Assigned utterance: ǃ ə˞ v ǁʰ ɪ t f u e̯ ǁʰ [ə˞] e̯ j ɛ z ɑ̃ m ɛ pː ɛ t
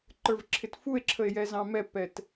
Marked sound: incorrect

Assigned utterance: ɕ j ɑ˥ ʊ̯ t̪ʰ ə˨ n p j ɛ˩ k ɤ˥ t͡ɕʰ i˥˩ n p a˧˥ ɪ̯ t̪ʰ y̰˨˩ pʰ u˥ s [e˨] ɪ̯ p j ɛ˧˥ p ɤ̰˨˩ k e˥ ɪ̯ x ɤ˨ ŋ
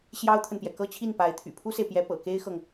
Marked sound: correct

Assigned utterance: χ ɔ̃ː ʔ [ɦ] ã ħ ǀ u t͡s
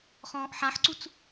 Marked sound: incorrect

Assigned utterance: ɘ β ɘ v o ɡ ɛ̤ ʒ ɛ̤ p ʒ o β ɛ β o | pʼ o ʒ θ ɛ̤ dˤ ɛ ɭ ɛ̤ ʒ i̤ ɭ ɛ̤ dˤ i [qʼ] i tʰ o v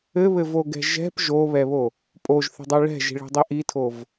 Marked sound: incorrect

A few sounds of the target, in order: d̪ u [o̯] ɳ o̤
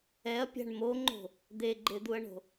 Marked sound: incorrect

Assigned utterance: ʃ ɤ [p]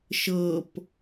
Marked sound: correct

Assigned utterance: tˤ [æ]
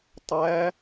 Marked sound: correct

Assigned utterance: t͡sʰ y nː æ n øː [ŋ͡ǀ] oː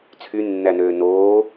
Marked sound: incorrect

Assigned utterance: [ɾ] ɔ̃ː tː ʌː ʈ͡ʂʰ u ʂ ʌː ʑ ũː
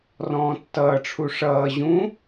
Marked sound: incorrect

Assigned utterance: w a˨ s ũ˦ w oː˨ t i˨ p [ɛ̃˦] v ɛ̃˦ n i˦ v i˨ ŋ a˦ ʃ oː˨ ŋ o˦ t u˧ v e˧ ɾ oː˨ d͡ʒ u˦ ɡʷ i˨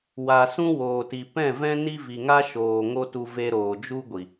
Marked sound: incorrect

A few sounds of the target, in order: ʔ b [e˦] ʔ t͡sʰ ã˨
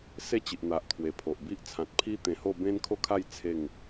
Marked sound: incorrect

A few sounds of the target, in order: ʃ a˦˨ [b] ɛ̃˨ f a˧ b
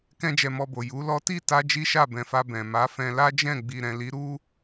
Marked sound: correct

